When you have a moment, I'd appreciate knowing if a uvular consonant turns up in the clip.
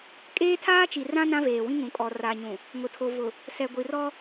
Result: no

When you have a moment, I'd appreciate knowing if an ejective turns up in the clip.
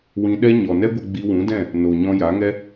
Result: no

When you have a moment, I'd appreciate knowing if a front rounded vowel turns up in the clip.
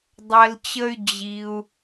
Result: yes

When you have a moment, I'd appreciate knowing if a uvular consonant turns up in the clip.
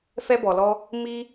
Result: no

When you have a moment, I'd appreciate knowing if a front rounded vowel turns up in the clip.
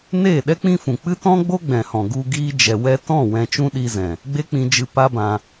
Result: no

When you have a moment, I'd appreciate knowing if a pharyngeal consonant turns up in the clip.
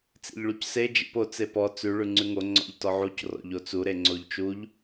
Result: yes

